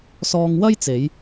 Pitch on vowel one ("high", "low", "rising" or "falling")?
high